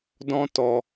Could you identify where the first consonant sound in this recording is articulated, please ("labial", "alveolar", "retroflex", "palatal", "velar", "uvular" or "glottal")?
alveolar